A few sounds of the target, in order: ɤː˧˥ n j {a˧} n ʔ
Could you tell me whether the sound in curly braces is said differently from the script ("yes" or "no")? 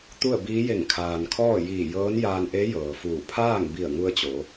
yes